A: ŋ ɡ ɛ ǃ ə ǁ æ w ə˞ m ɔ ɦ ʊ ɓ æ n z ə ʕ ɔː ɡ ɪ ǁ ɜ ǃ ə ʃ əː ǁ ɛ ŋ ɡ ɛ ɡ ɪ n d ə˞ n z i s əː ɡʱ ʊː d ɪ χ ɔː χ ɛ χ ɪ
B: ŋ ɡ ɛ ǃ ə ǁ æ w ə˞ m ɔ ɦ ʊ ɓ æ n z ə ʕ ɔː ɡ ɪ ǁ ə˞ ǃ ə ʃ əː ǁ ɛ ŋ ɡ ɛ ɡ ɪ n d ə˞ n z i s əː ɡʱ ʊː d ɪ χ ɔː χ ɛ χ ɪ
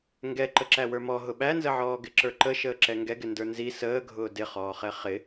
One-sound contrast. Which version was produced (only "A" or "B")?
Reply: B